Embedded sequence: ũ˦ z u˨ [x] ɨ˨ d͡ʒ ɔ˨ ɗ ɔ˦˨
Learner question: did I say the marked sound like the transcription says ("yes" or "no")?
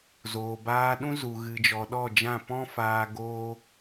no